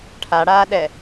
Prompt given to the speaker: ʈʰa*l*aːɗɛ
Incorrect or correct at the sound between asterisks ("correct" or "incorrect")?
incorrect